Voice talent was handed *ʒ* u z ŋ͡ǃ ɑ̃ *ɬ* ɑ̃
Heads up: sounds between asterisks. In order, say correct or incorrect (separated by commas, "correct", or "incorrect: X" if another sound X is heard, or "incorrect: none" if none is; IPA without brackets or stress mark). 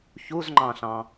incorrect: ç, correct